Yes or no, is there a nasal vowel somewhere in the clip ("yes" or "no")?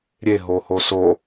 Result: no